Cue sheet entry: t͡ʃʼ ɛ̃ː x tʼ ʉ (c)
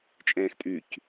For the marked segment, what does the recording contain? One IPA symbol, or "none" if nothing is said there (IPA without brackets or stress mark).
c